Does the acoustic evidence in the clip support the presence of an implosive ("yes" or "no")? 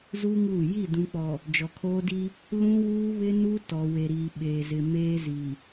yes